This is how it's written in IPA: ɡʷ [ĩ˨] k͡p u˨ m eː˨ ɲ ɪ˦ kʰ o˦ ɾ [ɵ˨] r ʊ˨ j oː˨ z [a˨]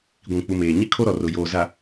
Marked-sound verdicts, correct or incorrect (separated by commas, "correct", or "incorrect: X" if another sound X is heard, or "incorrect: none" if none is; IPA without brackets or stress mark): correct, incorrect: ɔ˨, correct